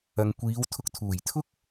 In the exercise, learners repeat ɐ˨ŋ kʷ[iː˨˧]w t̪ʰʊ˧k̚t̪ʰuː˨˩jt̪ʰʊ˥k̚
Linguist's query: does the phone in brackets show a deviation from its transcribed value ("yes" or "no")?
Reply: no